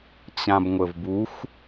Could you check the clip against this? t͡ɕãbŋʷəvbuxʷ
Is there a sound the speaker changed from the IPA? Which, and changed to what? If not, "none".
none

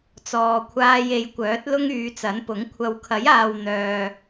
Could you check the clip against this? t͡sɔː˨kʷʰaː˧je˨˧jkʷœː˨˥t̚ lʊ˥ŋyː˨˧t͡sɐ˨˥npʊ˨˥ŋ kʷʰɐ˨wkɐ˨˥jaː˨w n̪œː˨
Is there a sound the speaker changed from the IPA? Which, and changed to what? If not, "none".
k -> kʰ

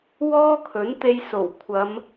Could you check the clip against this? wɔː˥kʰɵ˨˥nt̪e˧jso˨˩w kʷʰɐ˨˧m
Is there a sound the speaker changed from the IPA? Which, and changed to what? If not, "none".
none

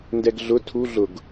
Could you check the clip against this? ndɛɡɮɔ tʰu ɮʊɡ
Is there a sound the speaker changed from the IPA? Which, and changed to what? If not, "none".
ɔ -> ʊ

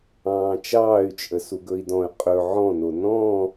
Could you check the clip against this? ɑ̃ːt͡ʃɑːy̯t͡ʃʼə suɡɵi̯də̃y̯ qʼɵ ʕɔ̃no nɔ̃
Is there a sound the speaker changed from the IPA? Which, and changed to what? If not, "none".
ə̃ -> ɔ̃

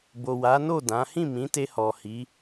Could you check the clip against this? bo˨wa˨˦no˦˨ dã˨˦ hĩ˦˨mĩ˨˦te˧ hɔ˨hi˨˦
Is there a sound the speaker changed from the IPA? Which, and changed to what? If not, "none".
none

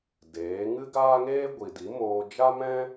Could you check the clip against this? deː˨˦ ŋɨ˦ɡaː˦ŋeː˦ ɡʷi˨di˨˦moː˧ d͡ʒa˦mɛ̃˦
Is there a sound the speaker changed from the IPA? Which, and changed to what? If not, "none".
none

